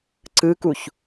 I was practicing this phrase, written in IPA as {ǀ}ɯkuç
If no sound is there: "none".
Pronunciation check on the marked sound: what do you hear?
ǀ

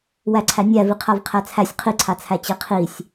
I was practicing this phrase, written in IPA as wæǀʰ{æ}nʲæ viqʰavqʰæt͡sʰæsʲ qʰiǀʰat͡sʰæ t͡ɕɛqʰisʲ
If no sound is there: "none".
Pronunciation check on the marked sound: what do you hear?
æ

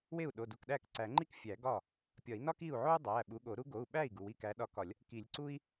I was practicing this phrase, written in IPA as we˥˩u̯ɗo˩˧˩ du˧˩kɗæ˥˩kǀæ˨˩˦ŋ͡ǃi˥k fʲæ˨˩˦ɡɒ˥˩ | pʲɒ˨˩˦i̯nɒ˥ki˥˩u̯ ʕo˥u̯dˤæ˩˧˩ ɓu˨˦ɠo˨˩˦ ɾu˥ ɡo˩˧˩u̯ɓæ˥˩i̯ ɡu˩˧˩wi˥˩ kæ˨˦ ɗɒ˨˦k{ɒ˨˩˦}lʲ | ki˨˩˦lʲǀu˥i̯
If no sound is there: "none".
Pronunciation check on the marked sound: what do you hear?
ɒ˨˩˦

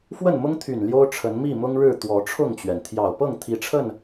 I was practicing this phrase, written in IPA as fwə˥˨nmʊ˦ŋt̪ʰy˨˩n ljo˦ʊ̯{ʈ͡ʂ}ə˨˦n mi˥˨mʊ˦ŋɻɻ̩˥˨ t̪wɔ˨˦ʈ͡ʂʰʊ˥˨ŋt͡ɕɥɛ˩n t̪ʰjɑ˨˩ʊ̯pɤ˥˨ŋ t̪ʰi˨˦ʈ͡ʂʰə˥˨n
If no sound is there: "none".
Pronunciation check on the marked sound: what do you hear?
ʈ͡ʂʰ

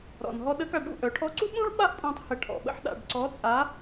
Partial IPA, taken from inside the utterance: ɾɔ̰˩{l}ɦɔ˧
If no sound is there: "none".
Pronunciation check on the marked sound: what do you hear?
n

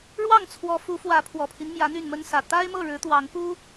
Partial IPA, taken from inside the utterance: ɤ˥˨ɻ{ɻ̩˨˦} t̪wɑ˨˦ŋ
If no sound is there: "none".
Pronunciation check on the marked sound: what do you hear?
ɻ̩˨˦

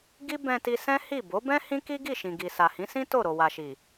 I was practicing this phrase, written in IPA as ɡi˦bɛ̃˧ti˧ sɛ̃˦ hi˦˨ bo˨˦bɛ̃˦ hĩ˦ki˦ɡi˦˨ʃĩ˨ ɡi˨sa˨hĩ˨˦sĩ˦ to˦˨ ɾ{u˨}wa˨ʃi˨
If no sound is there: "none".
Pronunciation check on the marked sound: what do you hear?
o˨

